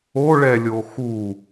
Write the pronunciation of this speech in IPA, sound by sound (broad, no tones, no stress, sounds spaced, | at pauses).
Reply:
o ɭ ɛ lʲ o x u